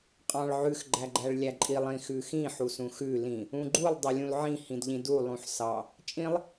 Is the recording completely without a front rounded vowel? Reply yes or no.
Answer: yes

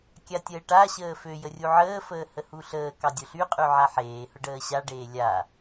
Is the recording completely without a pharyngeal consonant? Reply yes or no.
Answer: no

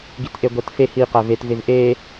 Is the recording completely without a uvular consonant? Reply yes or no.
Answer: no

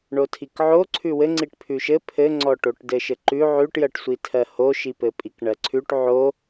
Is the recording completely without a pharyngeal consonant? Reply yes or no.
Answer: no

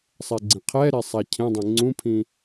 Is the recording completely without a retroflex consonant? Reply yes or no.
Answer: yes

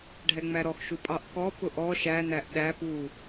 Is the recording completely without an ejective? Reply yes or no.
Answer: no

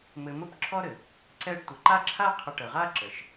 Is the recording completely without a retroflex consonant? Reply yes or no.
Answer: no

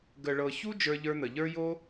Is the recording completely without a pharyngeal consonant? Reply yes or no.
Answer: yes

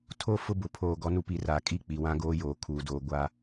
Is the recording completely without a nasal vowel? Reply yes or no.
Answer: no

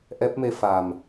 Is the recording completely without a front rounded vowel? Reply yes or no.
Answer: yes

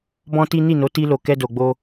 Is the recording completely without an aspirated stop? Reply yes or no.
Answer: yes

